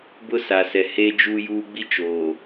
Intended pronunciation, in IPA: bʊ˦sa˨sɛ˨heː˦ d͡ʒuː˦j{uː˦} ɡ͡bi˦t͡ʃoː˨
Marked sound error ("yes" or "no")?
no